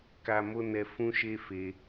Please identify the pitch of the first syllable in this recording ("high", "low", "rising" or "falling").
high